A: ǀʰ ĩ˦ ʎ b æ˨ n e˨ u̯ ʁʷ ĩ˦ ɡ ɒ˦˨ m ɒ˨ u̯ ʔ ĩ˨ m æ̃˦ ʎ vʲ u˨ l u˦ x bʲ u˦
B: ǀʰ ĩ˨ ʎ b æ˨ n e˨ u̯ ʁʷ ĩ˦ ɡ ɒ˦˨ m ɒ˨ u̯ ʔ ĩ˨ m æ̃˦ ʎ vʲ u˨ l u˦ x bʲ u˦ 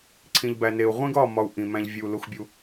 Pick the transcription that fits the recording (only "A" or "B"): B